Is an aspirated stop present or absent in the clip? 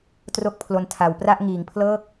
present